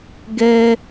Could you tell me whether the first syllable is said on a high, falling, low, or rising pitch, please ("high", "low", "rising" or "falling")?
high